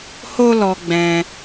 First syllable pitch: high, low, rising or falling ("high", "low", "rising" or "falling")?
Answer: high